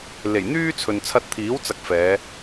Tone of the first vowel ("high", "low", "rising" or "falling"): low